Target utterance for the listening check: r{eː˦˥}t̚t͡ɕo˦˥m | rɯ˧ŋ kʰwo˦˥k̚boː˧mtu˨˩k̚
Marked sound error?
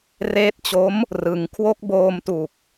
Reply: no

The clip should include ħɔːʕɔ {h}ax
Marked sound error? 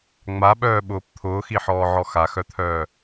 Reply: yes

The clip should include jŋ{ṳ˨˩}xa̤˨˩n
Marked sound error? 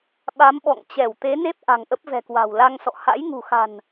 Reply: no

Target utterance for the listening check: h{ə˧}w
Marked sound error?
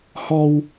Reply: yes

